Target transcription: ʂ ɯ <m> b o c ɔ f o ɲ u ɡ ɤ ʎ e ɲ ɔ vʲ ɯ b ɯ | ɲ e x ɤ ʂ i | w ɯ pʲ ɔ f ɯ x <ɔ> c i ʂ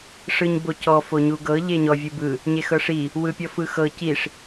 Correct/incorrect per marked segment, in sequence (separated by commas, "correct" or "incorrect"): incorrect, incorrect